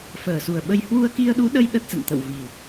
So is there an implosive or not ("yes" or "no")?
yes